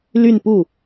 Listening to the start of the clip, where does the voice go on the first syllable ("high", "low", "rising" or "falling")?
falling